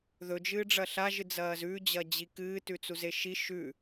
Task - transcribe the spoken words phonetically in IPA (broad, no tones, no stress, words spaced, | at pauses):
ðɵd͡ʒɨːɖ͡ʐɐ ɬaʒɨd͡zɐːz ʉd͡ʑɐd͡ʑi kɨːtʉt͡suze ʃi ʃʉ